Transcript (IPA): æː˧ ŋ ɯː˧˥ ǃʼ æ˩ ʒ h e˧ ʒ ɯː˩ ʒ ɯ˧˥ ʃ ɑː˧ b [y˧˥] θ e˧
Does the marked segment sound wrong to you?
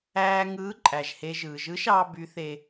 no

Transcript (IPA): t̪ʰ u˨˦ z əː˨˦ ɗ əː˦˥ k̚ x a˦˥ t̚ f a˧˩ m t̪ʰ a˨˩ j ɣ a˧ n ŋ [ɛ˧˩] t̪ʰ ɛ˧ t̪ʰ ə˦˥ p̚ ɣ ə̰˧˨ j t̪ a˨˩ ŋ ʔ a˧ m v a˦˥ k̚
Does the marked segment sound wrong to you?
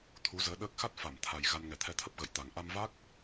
no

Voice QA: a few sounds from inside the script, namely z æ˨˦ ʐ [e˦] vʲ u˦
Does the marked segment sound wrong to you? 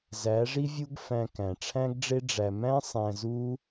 yes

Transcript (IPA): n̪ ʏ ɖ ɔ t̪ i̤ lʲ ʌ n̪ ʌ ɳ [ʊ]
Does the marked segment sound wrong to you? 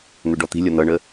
yes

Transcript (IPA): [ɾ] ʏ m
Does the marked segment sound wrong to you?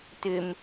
yes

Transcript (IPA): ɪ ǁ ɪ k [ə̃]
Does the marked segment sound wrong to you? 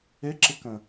no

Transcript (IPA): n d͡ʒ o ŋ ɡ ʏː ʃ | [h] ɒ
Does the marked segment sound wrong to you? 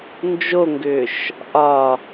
yes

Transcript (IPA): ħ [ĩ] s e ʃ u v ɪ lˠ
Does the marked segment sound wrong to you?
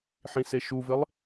no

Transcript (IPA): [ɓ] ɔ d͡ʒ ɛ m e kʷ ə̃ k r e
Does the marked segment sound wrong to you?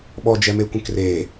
no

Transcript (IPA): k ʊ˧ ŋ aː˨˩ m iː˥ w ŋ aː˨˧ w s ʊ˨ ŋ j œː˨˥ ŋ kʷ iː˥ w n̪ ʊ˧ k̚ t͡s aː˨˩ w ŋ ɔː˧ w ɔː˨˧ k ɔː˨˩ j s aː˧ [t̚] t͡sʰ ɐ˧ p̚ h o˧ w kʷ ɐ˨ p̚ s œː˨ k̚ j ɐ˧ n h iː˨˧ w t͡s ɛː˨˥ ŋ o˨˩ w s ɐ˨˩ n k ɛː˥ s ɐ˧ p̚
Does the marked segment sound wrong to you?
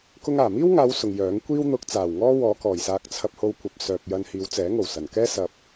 yes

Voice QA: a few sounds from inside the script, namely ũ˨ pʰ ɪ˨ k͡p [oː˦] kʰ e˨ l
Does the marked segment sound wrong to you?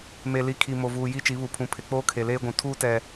no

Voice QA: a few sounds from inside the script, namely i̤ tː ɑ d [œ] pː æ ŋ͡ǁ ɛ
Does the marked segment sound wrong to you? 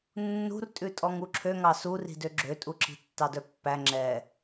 no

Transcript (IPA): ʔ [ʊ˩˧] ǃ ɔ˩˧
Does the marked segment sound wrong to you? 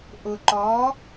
yes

